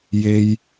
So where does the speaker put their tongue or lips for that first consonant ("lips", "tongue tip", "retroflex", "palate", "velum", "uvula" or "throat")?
palate